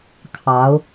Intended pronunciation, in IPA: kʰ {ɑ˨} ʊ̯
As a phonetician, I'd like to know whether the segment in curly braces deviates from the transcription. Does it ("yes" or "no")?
yes